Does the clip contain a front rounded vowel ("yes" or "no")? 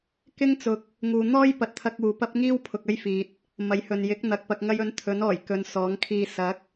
no